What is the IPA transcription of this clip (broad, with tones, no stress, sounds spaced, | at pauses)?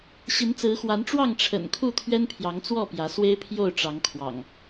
ɕ i˨˦ n t͡s ɹ̩˨˦ x w a˨˦ n ʈ͡ʂ w ɑ˥˨ ŋ ʈ͡ʂʰ ə̰˨˩ n kʰ u˥˨ t̪ʰ ɥ ɛ˦ n pʰ j ɑ˨˦ ŋ t͡s w ɔ˥˨ p j ä˨˦ s w e˦ ɪ̯ pʰ j o˥˨ ʊ̯ ʈ͡ʂ ɑ˨˦ ŋ kʰ w ɑ̰˨˩ ŋ